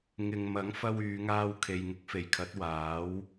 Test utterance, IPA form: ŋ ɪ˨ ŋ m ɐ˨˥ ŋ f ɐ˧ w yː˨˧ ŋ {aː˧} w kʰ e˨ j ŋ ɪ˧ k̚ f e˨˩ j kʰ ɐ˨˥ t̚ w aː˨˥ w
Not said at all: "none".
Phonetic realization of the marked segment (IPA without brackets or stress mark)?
aː˧